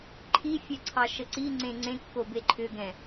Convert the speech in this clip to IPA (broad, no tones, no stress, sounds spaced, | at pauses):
ǃʰ i fʲ ɛ ǀʰ ɑ ʃ ə ǀ i ŋ͡ǀ ẽ ŋ͡ǀ ẽ kː o b e ǃʰ ʏ ɡ ɛ̃